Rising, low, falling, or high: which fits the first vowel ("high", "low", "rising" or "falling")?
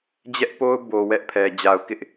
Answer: high